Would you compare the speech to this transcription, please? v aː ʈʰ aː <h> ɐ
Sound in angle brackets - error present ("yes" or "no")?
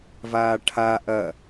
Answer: yes